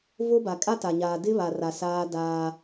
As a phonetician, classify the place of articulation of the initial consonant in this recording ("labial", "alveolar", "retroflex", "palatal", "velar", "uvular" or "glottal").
labial